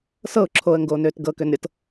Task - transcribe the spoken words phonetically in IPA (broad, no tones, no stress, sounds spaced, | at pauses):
s ɤ ʊ̯ ǁʰ oː ə̯ ŋ ɡ oː n øː t ɡ ɤ k ø n ɾʲ ɤ t